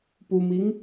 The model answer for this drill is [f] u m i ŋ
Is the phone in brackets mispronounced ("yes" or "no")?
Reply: yes